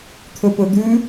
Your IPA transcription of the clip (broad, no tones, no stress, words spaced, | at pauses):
t̪ʰɵpɵd̪ʉ